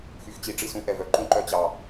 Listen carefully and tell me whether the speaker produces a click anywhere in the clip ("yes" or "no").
yes